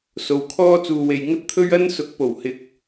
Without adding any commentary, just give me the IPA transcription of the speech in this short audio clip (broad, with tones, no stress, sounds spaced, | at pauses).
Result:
s o˨ w kʰ ɔː˥ t͡s uː˨ w e˨ j ŋ ɐ˥ t̚ t̪ʰ ɵ˥ ɥ ɐ˥ n s ʊ˨˥ k̚ p o˨˩ w h ɪ˨˥ k̚